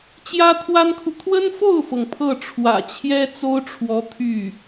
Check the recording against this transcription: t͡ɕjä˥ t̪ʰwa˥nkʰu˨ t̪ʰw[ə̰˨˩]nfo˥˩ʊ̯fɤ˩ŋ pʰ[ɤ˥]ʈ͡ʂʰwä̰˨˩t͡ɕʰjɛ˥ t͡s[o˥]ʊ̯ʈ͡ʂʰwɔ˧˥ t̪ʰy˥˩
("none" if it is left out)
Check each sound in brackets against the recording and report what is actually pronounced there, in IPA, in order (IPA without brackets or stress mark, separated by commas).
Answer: ə˥, ɤ˥˩, o˥